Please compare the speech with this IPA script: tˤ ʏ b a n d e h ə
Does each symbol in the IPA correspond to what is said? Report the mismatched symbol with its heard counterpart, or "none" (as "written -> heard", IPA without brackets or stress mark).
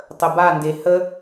ʏ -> ə